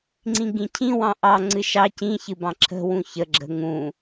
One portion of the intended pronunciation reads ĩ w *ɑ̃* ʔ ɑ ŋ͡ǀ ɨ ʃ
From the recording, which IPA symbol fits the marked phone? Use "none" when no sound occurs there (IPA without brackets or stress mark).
ɑ̃